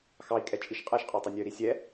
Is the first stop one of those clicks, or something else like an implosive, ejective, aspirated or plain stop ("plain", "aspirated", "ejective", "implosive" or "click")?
ejective